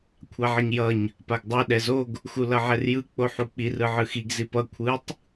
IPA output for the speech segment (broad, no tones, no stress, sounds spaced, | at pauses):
kʷʰ a ʕ ʌ ɲ j ʌ ɲ | p a ɡ dˤ ɯ ɗ ɛ z o ɡ | x u l ʌ ʕ ɛ r j ɯ k͡p o ħ u k͡p i r ɯ ʕ ɯ x i ɡ z i p ʌ kʷʰ ɯ tˤ